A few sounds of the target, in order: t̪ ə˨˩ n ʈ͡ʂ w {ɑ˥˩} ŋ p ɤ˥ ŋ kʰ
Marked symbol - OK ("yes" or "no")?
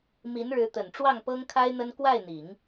yes